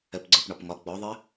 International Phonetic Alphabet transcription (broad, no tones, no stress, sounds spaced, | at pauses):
ɛ p ɡ͡ǀ ə˞ p ɳ ɒ p ŋ ɒ ɡ͡b ɔ ðˤ ɪ